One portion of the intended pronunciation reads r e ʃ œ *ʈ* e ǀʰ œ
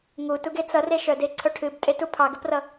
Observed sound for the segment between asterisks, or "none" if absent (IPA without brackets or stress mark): d